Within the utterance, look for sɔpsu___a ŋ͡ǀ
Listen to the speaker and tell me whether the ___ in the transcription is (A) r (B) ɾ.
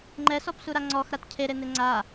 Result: B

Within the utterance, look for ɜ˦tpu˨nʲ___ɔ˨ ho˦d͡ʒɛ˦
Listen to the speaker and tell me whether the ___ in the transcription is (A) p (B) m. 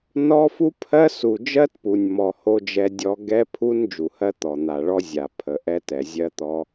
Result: B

